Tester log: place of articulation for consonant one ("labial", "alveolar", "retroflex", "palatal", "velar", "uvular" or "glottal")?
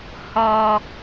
glottal